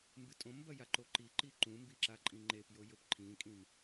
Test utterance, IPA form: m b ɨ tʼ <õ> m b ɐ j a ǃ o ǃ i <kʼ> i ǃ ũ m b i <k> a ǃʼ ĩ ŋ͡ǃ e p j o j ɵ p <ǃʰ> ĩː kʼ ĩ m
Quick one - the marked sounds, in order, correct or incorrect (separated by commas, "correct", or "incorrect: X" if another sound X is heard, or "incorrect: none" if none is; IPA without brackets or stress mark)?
correct, incorrect: ǃ, incorrect: ǁ, correct